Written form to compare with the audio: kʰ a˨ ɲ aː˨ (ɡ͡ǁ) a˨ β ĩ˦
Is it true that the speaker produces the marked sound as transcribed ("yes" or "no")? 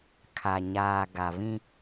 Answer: no